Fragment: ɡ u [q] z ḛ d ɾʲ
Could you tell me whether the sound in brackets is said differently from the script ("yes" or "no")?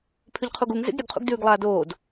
yes